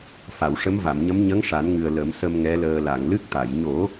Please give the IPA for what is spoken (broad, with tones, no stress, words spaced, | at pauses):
fa˨˩˨wʂə˧˥mva˨˩˨mɲə˧˥m ɲə˧˥ŋʂa˨˩˦nŋɨ˨˩ə̯ lə˨˩˦msə˧m ŋɛ˧˥ləː˧ la˨˩˨ŋlɨ˦˥k̚t̪a˨˩˨j ɲo˨˩˦